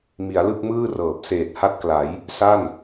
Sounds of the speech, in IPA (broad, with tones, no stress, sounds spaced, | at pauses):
m i˩˦ a̯ l ɯ˥˩ k̚ m ɯː˥˩ r ɤː˨˩ p̚ s eː˨˩ t̚ h a˥˩ t̚ k l a˩˦ j | s a˥˩ n